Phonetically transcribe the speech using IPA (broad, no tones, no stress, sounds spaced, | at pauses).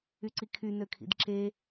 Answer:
y ǀ i kʰ y n ø kʰ ḭ d ǁ e